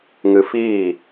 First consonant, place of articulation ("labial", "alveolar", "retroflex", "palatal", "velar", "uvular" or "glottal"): velar